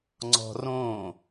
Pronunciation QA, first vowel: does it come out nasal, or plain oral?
oral